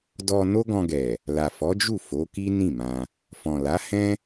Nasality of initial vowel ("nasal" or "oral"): oral